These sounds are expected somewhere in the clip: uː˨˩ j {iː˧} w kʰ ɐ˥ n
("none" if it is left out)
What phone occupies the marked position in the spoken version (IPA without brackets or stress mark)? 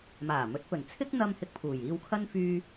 iː˧